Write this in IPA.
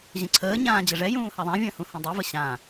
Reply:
ʑ ə̃ ǀʰ əː ɲ ãː d͡ʑ ə ʐ ɛ j ũː h a ðˤ ã vʲ ə̃ː h ũ h ɛ̃ dˤ u v ə ɕ ã

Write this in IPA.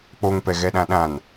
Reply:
k͡p o ŋ p ɛ ɣ ɛ ɗ ã ɗ ã n

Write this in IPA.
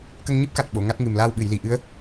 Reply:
k ə˧ ŋ ɲ ɨ˦˥ p̚ k a˨˩ t̚ ɓ o˨˩˨ ŋ a˦˥ t̚ ŋ ɨ˨˩ m l aː˧ w ɓ ɨ˨˩˨ j l i˨˩ ʔ ɨ˧˥ ə̯

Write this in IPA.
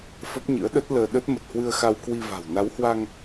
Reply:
f ə˦˥ p̚ ɲ ɨ̰˧˥ ə̯ ɗ ə˦˥ t̚ l əː˧ ɗ ə˦˥ t̚ m ə˨˩ t̚ h w ɨ˧ ə̯ x a˧ w k w i˧ v a̤˨˩ w n a˨˦ w h w a˧ ŋ

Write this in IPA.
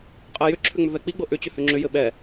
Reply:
qʼ ɛ j ʏ ǁʰ ʏ ŋ͡m ʏ v ɛ k͡p i ɡ͡b ɤ ʔ ʏ t͡ɕ ʏ h ʏ ŋ͡ǁ ʏ j ɘ ɓ ɛ

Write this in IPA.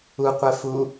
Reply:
u qʷ ɛ f u

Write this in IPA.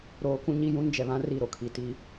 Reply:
ɾ oː˦ k ũ˦ ɲ i˦ j ũ˦ n d͡ʒ ɛ˨ β ã˦ r i˦˨ ɾ o˨ kʰ i˨ t i˦

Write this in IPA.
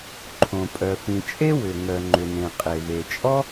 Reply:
ǃʰ õ˩ pʼ œ˩ f ĩ˩ t͡ʃʼ e˥ w ʏ˩ ŋ œ˩ ŋ͡ǃ ʏ˩ n ẽ˩ qʼ e˩ v e˩ t͡ʃʼ ɔ˥

